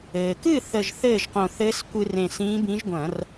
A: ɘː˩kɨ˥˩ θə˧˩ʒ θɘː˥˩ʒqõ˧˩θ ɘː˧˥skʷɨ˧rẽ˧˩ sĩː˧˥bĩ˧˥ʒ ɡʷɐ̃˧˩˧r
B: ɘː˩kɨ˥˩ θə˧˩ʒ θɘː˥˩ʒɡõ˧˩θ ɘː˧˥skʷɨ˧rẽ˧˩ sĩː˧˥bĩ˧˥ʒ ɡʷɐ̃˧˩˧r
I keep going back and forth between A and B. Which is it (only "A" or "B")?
A